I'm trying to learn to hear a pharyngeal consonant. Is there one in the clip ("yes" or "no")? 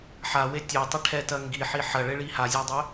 yes